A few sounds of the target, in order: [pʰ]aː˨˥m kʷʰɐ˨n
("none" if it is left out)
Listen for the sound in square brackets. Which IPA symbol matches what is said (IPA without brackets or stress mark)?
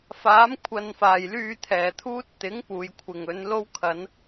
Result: f